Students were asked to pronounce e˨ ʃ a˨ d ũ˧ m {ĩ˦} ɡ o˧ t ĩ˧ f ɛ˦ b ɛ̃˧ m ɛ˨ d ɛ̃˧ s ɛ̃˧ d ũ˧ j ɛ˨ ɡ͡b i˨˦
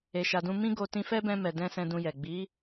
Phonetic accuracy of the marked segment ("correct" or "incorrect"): correct